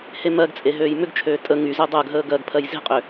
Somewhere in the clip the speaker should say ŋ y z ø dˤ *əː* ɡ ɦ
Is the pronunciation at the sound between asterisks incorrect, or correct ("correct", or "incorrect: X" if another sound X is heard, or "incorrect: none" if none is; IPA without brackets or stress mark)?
correct